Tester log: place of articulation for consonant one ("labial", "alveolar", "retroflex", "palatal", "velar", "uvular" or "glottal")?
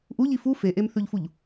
glottal